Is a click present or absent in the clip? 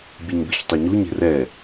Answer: absent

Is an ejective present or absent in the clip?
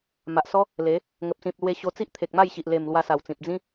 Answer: absent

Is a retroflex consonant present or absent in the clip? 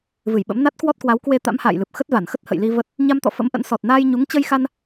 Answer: absent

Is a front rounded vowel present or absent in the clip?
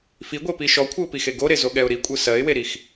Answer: absent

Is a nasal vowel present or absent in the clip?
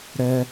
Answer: absent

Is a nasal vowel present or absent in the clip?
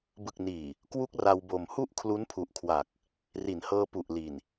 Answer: absent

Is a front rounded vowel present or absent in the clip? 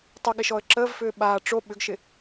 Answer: present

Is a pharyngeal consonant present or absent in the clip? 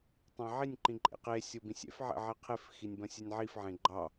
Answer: present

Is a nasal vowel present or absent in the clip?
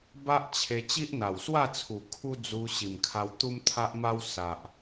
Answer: absent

